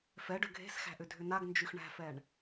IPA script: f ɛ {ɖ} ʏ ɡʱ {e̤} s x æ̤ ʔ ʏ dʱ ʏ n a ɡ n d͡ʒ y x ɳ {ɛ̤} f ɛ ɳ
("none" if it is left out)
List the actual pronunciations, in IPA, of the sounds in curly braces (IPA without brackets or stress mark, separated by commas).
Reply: ɖ, e̤, æ̤